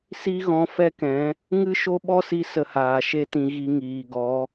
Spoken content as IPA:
s i˦ ɣ ɔ̃˧ f ɛ˦ k ɛ̃˨˦ | ŋ ɨ˦ ʃ o˦ ɓ ɔ˦ s i˧ s ə˧ h aː˨ ʃ e˦ t ĩ˧ ɣ i˧ ŋ iː˨ ɡ ɔ˨˦

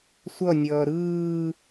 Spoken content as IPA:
sʷ ʌ nʲ ʌː ɾ ɯː

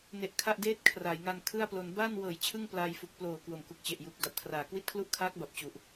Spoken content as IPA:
n e˨˩ ʔ kʰ a˥˩ ʔ d eː˥˩ t̚ kʰ r aː˩˦ j ŋ a˧ n kʰ ɯ˥˩ a̯ p l o˧ n b aː˥˩ n w ɤː˨˩ j t͡ɕʰ ɯ˥˩ ŋ p l aː˧ j f u˨˩ k̚ p l oː˨˩ k w o˨˩ m k u˨˩ k̚ t͡ɕ e˨˩ ʔ j uː˨˩ k̚ d a˨˩ p̚ kʰ r aː˩˦ k w i˦˥ t̚ kʰ l u˦˥ ʔ kʰ aː˦˥ k̚ b a˨˩ p̚ t͡ɕ u˨˩ ʔ

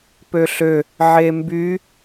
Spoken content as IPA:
p ø ɬ ø | ʕ e m b y

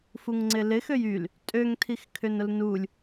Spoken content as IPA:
f u ŋ ŋ͡ǀ ɪ l ɪ x ø j y l | tʼ ø ŋ tʰ i x kʰ ʏ n ʊ l n u lʲ

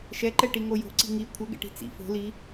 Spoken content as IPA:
ʃ ɛ ǃ ɛ ʈ i ŋ o j o̤ ǀ i̤ ŋ i kʷʰ ɘ ɡ ɛ̰ ʈ i̤ t͡s ḭ f o̤ l i

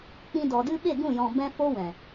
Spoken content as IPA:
k͡p ĩ˧ d ɔ˨ d ɨ˦ ɓ e˦˨ ɡ ũ˦˨ j ɔ̃˨ b ɛ̃˦ f o˦ w ɛ̃˨

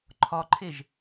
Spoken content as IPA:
ǃʰ ɒ ǃʰ e ʒ

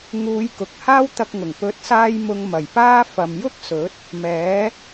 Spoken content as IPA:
ŋ uː˨˧ j k ʊ˨ k̚ h aː˥ w t̪ ɐ˧ k̚ ŋ ʊ˨˩ ŋ p ɵ˨˥ t̚ s aː˧ j m ʊ˧ ŋ m ɐ˨˩ j p aː˥ f ɐ˨ m j ʊ˥ k̚ s ɵ˨˥ t̚ | m ɛː˨˥

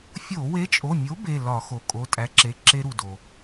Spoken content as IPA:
fʲ o˧˩˧ w e˨˥ t͡ʃʼ o˩˧˩ mʲ o˨˥ b e˩˧˩ l ɒ˧˩˧ x o˩ kʼ o˩˧˩ tʼ æ˨˥ ǁ e˩˧˩ ǁ e˦˥ ɾ u˩ d o˩

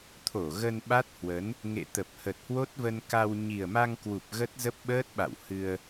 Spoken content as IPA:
t̪ʰ o˧˩ ɣ ə˧ n ɓ a˦˥ t̚ h w ə˨˦ n | ŋ ḛ˧˨ t̪ ə˨˩ p̚ h ə˨˩ t̚ h w o˦˥ t̚ v ə˧ n k a˧ w ɲ i˨˩ ə̯ m a˧ ŋ k w u˨˩ p̚ ɣ ə˦˥ t̚ z ə˦˥ p̚ ɓ əː˦˥ t̚ ɓ a̰˧˨ w h ɨ˧ ə̯

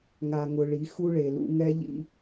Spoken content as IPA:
ŋ a˨ ŋ ʊ˨ ɭ i˨˦ x u˦ ɭ e˨ l ṵ˦ ŋ ɛ˦ ʎ ḭ˦

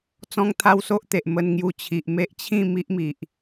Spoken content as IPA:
t͡s ɔ̃˦ ŋ t̪ʰ a˦ w s o˦ ʔ t̪ e˨ ʔ m ə˧ n ŋ j u˧ t͡ɕʰ i˨ ʔ m e˦ ʔ t͡ɕʰ ĩ˥˧ m i˦ ʔ m i˨ ʔ

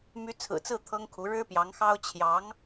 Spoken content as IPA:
m y˧˥ t͡sʰ ɹ̩˨˩ t͡s ɹ̩˥˩ t̪ʰ ɤ˥ ŋ kʰ u˧˥ ɻ ɻ̩˥ p j ɑ˧˥ ŋ x ɑ˥ ʊ̯ t͡ɕʰ j ɑ˧˥ ŋ

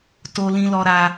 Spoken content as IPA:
t o˧ l ĩ˧ l ɔ˧ ɾ a˧

